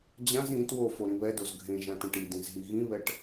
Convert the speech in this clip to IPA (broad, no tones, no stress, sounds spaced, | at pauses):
d͡ʑ ã z ĩ t w o f o ɾ ĩ β ɛ d o z ɡʱ ẽ ʒ ã t ɛ̃ ʈ i d ĩ z ɦ i ɣ ĩ β ɛ ʈ